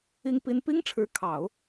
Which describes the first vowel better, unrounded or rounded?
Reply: unrounded